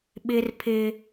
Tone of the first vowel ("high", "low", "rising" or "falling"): high